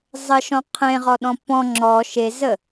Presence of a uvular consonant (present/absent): present